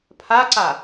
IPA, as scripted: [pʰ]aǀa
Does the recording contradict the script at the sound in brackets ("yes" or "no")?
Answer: no